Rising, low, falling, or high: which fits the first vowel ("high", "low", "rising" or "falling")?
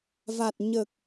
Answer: low